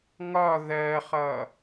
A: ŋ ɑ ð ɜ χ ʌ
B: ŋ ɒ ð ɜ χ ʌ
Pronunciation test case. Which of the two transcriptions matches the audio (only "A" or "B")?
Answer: B